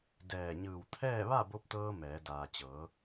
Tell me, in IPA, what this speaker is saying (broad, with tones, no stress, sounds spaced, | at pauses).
d ɛː˧˩ ɲ ɯː˧˩ w t̪ʰ ɛː˥˨ ʋ a˥˨ b o˧˥ p̚ t̪ ɤː˧ m ɛː˩˧ d aː˩ t͡ɕ ɤː˩˧